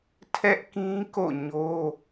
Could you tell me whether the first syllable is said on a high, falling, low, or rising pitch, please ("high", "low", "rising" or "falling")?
high